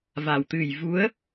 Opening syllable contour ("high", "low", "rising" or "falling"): low